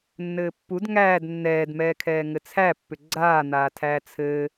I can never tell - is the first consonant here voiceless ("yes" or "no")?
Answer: no